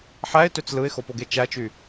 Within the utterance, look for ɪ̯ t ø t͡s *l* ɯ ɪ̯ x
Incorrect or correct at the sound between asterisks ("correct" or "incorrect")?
correct